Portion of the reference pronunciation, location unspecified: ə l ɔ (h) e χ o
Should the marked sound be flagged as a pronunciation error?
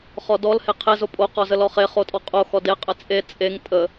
yes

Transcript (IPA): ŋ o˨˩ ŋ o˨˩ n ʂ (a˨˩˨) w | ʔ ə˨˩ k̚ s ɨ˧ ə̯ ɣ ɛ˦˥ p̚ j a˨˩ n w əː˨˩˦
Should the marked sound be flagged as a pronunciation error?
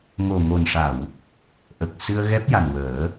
no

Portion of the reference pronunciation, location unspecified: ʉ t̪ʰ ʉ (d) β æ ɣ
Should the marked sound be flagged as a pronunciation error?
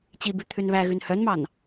yes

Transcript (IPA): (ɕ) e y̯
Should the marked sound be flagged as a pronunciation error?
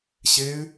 no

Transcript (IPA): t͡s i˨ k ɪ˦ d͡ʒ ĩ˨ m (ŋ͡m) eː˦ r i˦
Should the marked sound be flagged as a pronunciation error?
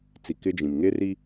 yes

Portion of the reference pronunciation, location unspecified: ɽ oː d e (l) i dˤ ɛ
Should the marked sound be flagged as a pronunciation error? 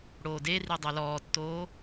yes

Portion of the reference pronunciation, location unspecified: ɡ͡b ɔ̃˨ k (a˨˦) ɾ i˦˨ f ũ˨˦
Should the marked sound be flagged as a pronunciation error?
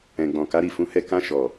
no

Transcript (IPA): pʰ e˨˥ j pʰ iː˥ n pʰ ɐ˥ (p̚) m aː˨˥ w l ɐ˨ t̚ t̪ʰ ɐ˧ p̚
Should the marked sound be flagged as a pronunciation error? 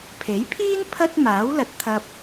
yes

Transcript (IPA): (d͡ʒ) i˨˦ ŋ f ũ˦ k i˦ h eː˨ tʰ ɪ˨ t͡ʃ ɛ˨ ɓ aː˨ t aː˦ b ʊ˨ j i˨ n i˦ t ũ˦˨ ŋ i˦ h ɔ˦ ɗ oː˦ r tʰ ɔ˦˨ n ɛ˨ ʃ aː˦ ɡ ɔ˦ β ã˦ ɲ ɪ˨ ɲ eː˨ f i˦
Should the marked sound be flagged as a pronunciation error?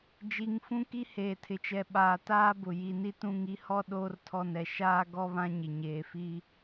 no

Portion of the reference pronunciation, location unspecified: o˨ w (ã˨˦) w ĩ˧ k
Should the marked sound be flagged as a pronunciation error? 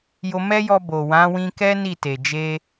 no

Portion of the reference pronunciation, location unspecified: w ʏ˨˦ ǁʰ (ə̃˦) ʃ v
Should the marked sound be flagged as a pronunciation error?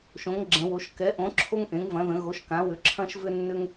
yes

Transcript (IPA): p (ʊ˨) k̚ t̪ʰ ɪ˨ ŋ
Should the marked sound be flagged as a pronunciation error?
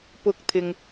no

